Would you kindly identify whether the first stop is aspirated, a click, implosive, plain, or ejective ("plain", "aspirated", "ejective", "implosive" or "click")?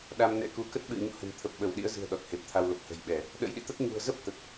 implosive